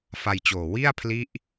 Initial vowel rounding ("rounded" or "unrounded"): unrounded